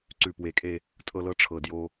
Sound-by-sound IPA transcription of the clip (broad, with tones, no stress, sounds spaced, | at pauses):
ǀ ʉ˨˩ p w e˨˩˦ kʼ e˧ | tʼ ɤ˧ l ɤ˧ ʈ͡ʂʰ ɤ˨˩ d j o˧